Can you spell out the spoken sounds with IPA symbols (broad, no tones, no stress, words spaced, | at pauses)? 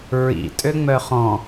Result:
ɹḭ tʼøŋ͡mœχɔ̃